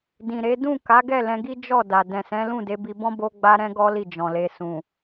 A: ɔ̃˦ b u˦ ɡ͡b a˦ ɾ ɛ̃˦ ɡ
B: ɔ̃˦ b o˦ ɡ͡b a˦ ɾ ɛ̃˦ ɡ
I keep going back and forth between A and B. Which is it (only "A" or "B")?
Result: B